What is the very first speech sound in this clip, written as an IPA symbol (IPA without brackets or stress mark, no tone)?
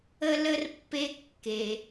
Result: ə